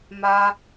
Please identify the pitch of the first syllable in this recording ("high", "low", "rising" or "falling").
high